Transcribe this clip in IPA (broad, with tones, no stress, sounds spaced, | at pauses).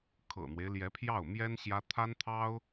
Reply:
kʰ ɤ̰˨˩ n̪ w e˦ ɪ̯ l j ɛ˧˥ pʰ j ɑ˥˩ ʊ̯ m j ɛ˥ n ɕ j ä˥ t̪ʰ a˥ n t̪ʰ ɑ˥ ʊ̯